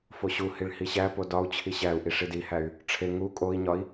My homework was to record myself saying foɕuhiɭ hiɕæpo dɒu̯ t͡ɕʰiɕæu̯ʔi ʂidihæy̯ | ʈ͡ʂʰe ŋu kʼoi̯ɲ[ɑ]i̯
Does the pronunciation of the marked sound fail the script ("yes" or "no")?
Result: yes